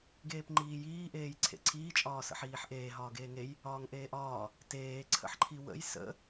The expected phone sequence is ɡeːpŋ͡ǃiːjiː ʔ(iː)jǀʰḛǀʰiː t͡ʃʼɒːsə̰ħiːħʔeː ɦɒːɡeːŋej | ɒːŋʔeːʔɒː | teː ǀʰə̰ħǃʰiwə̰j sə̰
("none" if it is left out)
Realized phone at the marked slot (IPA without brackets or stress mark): eː